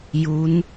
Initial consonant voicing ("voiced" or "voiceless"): voiced